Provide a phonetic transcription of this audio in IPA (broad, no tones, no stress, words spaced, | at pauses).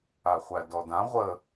aχʷædɔdã ʁʷə